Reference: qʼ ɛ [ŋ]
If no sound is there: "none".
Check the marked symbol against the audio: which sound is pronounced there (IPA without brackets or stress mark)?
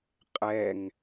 ŋ